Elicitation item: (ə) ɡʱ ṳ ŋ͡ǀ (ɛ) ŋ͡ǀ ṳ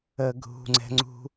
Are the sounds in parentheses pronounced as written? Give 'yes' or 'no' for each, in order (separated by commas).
yes, no